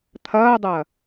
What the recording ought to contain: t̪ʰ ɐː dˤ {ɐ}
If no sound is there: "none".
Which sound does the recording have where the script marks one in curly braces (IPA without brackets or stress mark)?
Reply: ɐ